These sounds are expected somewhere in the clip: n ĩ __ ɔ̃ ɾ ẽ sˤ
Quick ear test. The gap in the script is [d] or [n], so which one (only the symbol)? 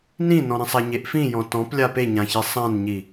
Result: n